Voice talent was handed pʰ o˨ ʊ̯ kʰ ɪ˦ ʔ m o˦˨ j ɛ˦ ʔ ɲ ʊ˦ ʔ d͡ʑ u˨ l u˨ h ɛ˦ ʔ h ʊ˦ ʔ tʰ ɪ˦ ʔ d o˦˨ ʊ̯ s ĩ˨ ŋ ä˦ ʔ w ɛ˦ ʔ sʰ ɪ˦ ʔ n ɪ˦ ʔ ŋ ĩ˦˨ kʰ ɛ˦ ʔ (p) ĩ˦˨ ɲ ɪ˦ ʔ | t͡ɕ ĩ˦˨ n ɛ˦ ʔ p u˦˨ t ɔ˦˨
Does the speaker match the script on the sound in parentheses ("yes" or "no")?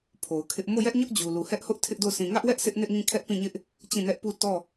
yes